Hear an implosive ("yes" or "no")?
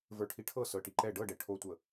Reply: no